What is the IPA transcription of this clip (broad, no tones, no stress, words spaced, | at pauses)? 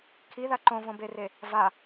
kʰiða ǃõvõbere | va